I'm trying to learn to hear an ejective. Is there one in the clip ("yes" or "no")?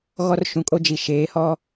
yes